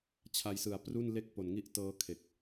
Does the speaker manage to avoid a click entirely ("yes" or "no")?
yes